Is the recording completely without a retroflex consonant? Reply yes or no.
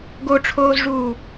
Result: no